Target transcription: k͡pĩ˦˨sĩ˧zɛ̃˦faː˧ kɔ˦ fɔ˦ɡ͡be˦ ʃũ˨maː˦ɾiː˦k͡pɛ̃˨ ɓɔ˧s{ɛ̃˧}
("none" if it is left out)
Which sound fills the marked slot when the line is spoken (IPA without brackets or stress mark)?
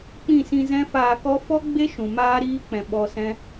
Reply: ɛ̃˦